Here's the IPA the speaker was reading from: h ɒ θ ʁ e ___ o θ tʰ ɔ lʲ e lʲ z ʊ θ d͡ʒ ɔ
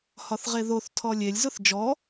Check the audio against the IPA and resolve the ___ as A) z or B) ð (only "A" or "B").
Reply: B